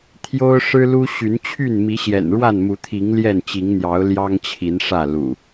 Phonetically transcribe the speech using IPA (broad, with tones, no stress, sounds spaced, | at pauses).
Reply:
t̪ʰ j o˦ ʊ̯ ʂ ɻ̩˦ l u˦ ɕ y˨˦ n t͡ɕʰ y˥˨ n m i˨˦ ɕ j ɛ̰˨˩ n ɻ w a˥˨ n m u˨˦ t̪ʰ i˨˦ ŋ l j ɛ˥˨ n t͡ɕ i˨˦ ŋ n̪ j ɑ˨˦ ʊ̯ l j ɑ˦ ŋ t͡ɕʰ i˨˦ n ʂ ä˥˨ l ṵ˨˩